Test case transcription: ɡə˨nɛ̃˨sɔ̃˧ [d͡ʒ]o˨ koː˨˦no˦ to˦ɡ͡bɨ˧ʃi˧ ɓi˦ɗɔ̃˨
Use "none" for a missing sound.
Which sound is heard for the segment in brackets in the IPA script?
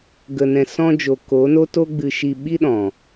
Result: d͡ʒ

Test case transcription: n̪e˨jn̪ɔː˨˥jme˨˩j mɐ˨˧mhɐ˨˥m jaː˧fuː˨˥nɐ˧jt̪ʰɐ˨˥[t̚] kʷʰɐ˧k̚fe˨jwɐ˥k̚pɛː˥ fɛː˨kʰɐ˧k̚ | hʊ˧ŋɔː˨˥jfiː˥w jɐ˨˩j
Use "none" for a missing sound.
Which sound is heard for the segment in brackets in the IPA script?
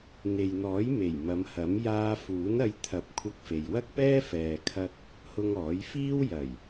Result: p̚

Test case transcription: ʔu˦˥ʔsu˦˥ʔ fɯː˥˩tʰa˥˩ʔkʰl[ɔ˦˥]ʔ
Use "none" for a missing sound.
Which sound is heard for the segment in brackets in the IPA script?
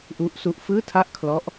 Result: ɔ˦˥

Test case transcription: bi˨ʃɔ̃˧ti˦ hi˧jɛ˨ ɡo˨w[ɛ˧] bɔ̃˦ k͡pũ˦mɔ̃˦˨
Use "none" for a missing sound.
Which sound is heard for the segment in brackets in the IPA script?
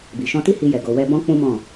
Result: ɛ˧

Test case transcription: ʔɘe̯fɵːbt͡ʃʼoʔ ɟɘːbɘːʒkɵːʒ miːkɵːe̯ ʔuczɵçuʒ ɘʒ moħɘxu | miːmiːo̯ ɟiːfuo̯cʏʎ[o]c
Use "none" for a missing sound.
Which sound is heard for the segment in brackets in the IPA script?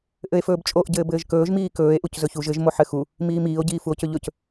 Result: ɵ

